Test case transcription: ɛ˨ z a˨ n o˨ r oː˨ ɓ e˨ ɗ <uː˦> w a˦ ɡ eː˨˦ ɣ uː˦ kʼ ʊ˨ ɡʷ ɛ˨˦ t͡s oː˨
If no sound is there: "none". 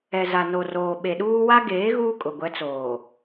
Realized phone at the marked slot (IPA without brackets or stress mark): uː˦